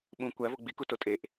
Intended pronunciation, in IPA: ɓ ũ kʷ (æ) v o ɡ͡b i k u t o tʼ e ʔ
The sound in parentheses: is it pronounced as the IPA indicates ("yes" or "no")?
yes